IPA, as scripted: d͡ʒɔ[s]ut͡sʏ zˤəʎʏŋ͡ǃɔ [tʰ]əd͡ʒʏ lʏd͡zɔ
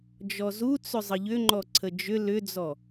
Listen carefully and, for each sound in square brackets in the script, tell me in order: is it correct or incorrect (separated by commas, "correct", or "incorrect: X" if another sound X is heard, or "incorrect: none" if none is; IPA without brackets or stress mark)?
incorrect: z, incorrect: ǀʰ